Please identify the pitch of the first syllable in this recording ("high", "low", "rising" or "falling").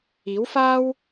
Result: rising